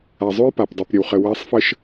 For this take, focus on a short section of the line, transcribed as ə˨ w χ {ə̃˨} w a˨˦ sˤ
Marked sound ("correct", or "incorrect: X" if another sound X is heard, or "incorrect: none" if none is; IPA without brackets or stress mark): incorrect: ə˨